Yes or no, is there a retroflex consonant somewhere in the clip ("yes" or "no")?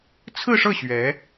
yes